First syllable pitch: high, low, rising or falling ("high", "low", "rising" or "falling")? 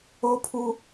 high